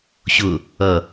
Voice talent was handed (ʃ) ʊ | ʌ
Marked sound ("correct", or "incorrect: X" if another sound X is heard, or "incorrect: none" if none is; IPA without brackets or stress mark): incorrect: ɕ